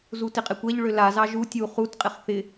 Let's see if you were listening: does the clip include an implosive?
no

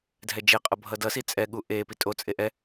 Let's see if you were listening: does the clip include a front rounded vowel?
no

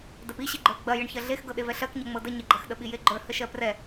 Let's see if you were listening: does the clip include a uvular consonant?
no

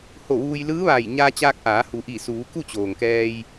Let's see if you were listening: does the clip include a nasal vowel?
no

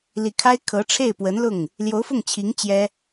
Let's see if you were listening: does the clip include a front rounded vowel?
no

